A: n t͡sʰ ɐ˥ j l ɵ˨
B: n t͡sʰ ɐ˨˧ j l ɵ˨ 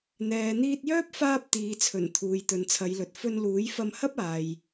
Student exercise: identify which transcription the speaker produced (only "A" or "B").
B